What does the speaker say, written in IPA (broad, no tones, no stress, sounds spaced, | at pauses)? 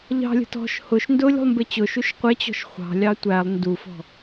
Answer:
ʎ ɑ̤ lʲ ə̤ t ɔ̤ ʃ h ʊ ʃ n d ʊ lʲ ṳ lˠ m b ɪ t͡ɕ ʊ ʃ u ʃ qʷ ɪ t͡ɕ ɔ̤ ʃ χʷ ɑ̤ lʲ ɑ tʷ æ lˠ n d u f ɔ̤